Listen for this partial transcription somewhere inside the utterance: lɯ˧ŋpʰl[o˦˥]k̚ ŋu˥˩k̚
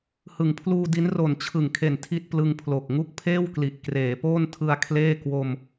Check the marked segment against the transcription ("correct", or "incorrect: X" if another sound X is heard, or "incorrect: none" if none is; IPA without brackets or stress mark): incorrect: o˨˩